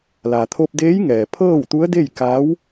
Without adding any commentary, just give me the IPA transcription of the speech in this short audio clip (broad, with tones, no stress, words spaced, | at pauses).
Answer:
la˩t̪ʰo˧p̚ deː˧˥jŋɛː˩ pʰɤː˥˨wt̪u˧˥ə̯ de˥˨jka˧˥w